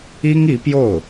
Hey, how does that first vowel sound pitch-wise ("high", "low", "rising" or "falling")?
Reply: high